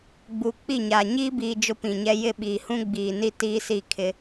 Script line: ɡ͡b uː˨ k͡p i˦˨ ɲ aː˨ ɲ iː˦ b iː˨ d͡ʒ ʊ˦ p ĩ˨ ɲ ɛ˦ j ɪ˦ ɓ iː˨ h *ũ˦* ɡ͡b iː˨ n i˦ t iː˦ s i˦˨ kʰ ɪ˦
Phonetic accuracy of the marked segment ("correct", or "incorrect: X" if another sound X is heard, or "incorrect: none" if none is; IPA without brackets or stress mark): correct